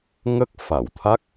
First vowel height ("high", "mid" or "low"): mid